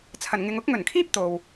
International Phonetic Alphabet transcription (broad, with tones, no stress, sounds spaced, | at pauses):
t͡sʰ ɐ˨˩ n ŋ ɪ˨ ŋ ʊ˨˥ k̚ ŋ ɵ˨˩ n kʰ iː˥ p̚ t̪ o˨ w